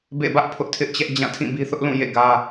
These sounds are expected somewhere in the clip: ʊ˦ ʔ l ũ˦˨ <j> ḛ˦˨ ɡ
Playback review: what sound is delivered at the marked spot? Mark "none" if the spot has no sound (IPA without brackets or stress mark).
j